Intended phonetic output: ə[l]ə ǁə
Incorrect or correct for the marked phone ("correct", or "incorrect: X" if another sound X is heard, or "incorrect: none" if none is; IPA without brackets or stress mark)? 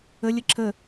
incorrect: lʲ